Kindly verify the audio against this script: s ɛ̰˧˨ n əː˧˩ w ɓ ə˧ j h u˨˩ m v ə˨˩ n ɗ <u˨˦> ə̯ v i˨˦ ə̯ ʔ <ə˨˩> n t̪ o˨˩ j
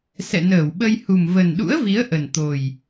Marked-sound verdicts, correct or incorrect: incorrect: ṵ˧˥, correct

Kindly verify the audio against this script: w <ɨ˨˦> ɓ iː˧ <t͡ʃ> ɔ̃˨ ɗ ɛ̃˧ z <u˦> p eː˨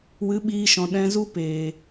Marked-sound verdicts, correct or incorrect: correct, incorrect: ʃ, correct

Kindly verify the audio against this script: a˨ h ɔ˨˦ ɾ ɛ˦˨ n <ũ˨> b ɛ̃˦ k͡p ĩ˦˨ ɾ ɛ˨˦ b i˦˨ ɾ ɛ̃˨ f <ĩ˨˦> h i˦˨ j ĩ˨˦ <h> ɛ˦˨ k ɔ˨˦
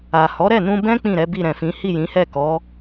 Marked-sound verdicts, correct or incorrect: incorrect: ũ˧, correct, correct

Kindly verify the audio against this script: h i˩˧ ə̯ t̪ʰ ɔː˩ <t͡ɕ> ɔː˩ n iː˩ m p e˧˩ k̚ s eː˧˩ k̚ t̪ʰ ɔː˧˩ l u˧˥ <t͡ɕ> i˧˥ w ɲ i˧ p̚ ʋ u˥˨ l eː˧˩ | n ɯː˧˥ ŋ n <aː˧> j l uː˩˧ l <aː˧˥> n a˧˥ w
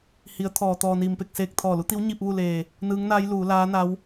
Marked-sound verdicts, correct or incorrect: incorrect: t̪, incorrect: t̪, incorrect: aː˧˥, correct

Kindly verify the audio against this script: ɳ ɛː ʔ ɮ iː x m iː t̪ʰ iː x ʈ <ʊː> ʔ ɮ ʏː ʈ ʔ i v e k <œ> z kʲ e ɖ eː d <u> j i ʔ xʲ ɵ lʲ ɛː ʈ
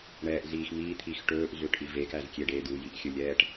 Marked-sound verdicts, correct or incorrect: incorrect: ɵː, incorrect: æ, correct

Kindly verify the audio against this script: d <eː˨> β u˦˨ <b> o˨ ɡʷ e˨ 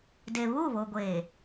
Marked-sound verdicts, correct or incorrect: incorrect: e˨, incorrect: β

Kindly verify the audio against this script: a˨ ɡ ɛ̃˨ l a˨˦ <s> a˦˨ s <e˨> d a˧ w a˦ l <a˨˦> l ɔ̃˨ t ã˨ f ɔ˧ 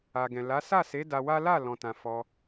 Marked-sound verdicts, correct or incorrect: correct, incorrect: e˨˦, incorrect: a˦˨

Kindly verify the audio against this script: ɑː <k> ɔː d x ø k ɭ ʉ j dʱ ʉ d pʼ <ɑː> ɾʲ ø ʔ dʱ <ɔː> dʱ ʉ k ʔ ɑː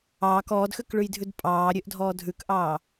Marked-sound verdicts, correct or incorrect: correct, correct, correct

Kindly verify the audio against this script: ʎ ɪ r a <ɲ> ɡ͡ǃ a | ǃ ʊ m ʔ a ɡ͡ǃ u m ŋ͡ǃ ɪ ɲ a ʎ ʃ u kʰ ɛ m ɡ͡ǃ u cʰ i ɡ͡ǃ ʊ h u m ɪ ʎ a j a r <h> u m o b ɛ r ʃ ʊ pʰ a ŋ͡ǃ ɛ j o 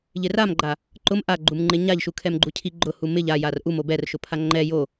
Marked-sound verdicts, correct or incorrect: incorrect: m, incorrect: ʔ

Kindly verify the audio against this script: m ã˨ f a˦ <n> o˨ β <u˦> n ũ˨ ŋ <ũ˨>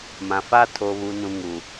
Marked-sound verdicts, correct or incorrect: incorrect: tʰ, incorrect: u˨, incorrect: u˨

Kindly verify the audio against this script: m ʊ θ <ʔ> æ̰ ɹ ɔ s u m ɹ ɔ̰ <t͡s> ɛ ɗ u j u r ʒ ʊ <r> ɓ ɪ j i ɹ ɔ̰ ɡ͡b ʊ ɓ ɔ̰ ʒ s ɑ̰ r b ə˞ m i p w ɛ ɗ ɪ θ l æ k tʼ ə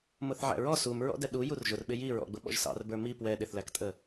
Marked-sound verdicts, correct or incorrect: incorrect: ʕ, incorrect: d, correct

